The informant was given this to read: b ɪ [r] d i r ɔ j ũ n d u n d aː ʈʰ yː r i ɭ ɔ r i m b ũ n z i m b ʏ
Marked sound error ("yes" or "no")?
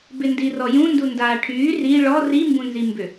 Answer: yes